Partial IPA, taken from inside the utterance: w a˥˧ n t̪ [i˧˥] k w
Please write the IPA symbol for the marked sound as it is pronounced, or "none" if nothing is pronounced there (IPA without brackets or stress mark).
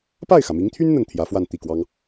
i˥˩